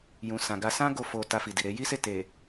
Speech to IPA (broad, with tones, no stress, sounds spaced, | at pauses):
j ũ˨ s ã˨ ɡ a˧ s ã˦ ɡ o˦˨ f o˧ t a˧ f i˨ d i˨ ɾ e˨˦ j i˦ s e˦˨ t e˨